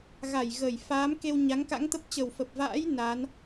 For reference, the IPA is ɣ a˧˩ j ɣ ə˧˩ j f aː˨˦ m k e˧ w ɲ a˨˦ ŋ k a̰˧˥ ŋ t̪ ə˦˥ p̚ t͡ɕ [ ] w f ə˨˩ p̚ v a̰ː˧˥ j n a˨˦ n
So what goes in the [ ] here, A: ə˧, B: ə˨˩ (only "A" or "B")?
B